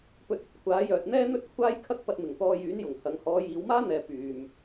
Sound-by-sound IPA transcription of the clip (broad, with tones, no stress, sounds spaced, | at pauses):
p ɵ˧ t̚ ɐ˧ t̚ kʷʰ aː˨˥ j œː˨ t̚ n̪ ɛː˥ n̪ ɵ˥ t̚ kʷʰ aː˥ j kʰ ɐ˥ k̚ p ɐ˧ t̚ m ɪ˨˩ ŋ t̪ ɔː˧ j yː˨˥ n j ʊ˨˩ ŋ h ɐ˨˧ ŋ h ɔː˨˧ j iː˨˧ w m aː˥ n̪ ɛː˨ p yː˨ m